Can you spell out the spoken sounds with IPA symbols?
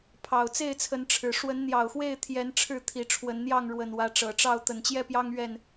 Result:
pʰ ɑ˨˩ ʊ̯ t͡s e˥˨ ɪ̯ t͡sʰ ə˨˦ n ʈ͡ʂʰ ɻ̩˨˩ ʂ w ə˨˦ n n̪ j ɑ˨˩ ʊ̯ x w e˥˨ ɪ̯ t̪ʰ j ɛ˨˦ n ʈ͡ʂʰ ɻ̩˥˨ t̪ʰ i˨˦ ʈ͡ʂʰ w ə˨˦ n n̪ j ɑ˥˨ ŋ ɻ w ə˨˩ n w ä˨˦ ʈ͡ʂ ɤ˨˩ ʈ͡ʂ ɑ˥˨ ʊ̯ t̪ ə˨˩ n t͡ɕ j ɛ˦ p j ɑ˦ ŋ ɥ ɛ˥˨ n

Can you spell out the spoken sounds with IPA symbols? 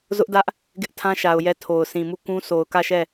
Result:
z ʊ˦ ʔ d ä˦ ʔ | ɡ ɪ˦ ʔ tʰ ã˦ ʃ a˨ ʊ̯ j ɛ˦˨ tʰ o˨ ʊ̯ s ĩ˨ m u˦˨ k ũ˦ s o˨ ʊ̯ k ä˦˨ ʃ ɛ˦˨

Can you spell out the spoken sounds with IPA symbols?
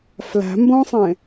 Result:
f l æ̤ m b õ sˤ ẽ

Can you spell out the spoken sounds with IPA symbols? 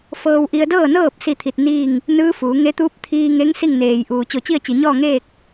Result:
f ɤː˧ w ʔ i˧ ə̯ d ɤː˥˨ n ɤː˥˨ p̚ s i˥˨ t̪ʰ i˧˩ t̚ n iː˥˨ ŋ | n ɯː˧˥ f uː˩˧ ŋ e˧˥ t̪ uː˧˥ p̚ t̪ʰ iː˧ ŋ e˧˥ ŋ s i˥˨ ŋ n eː˩ j ʔ uː˩ t͡ɕ o˧˩ t͡ɕ i˥˨ ə̯ t͡ɕ i˩ ɲ ɔː˥˨ ŋ eː˥˨ k̚

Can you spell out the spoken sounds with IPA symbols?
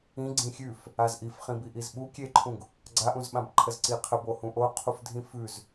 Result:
ĩ ɡ͡ǀ ĩ xʲ ʉ f | a z ʔ i f χ ĩ b i ʔ i z ɓ u kʲ e ǃʰ ũ ɡ | ɡ͡ǀ a ʔ ũ z ɓ ã b ǃʰ ə z ǀ i qʰ ə b o h ũ ʔ o qʰ u f dʱ ĩ f ʉ z

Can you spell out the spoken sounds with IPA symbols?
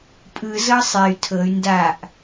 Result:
pʼ ɯ z ɤ sˤ e y̯ tʰ ɤ y̯ n d a ʔ

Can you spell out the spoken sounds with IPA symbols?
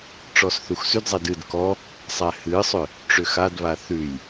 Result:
ʈ͡ʂ ɔ s θ u x s ʉ d zˤ ɛ d ɨ d k ɔ | sˤ æ h ɨ sˤ ʏ | ʈ͡ʂ ʏ x a d β a θ ʉ j

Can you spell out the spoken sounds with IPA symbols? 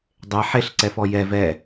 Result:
dˤ e ħ e ɬ ǀ ɛ f ɔ j ɛ v ɛ

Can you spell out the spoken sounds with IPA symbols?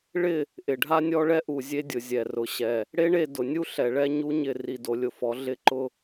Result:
ɭ ɪ˦˨ | ʔ ɪ˨ ɖʱ a˦ nʲ ɔ˦ ɭ ɛ˦ ʔ u˨ zʲ e˦ dʲ ʊ˨ zʲ ɛ˨ r ʊ˨ ɕ ɛ˨ | ɽ e˦ ɳ e˦˨ d ʊ˨ nʲ u˦ ɬ ɛ˨ ɭ ɛ˦ ɲ u˦ ɲ ɪ˦˨ r i˨ d o˨ lʲ ʊ˨ f ɔ˨˦ ɮ ɪ˦ ǃ ʊ˦

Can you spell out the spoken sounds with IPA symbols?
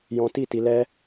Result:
j ɔ̃˧ t i˦˨ t i˧ l ɛ˦

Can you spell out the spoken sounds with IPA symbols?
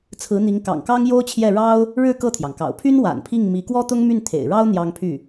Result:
t͡sʰ ɹ̩˧˥ n̪ i˧˥ ŋ k ɑ̰˨˩ ŋ k ɑ˥ ŋ j o˥ ʊ̯ t͡ɕʰ j ɛ˥˩ ɻ ɑ˥ ʊ̯ | ɻ ɻ̩˥˧ k ɤ˥˩ t̪ʰ j ɑ˩ ŋ k ɑ̰˨˩ ʊ̯ pʰ y˥ n w a̰˨˩ n pʰ i˥˩ ŋ m i˧˥ k w ɔ˥ t̪ ʊ˥ ŋ m y˥˩ n t̪ʰ ḛ˨˩ ɪ̯ ɻ ɑ˥ ʊ̯ n̪ j ɑ˥ ŋ pʰ y˥˩

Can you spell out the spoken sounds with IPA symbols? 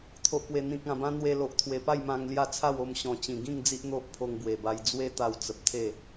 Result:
t̪ʰ o˨ ʔ p w e˨˩ n̪ ĩ˨ k̚ ã˨˩ b ã˧ n̪ w e˧ l o˨ ʔ t̪ʰ w e˨˩ p a˥˧ j m ã˧ ŋ l j a˥˧ t͡sʰ a˥˧ w o˧ m ɕ ɔ̃˨˩ t͡ɕ ĩ˨˩ ɡ ĩ˥˧ ŋ d͡z i˦ ʔ n̪ o˦ ʔ pʰ o˧ ŋ b w e˨˩ b a˧ j d͡z w e˦ t̪ a˧ w t͡s ə˨ p̚ t̪ʰ e˥˧

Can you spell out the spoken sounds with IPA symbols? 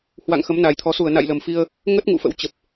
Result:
h w a̰˧˨ ŋ x ə˨˦ m n a˨˩ j t̪ʰ ɔ˨˦ s u˧˩ ə̯ n a̰˧˨ j l ə˨˩ m f i˧ ə̯ | ŋ ə˦˥ t̚ ŋ ṵ˧˨ f ə̰˧˥ w t͡ɕ ə˨˩ p̚

